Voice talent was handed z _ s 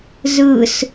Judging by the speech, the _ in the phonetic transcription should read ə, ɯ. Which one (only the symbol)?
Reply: ɯ